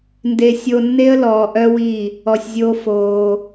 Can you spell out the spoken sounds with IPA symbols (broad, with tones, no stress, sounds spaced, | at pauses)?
n d e˨ sʲ o˨ nː e˧ ə̯ l ɔː˨ ʔ œ˦ w i˦˨ | ɔ˨ sʲ zʲ oː˧ f oː˧